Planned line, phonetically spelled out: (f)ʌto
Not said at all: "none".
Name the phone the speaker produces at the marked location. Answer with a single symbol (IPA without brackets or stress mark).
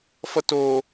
f